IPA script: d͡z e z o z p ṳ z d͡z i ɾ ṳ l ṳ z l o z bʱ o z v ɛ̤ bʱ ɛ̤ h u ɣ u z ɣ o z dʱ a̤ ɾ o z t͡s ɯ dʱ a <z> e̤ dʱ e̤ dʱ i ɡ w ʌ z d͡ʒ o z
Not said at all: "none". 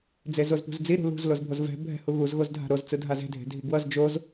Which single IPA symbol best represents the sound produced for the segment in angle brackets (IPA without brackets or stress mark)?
z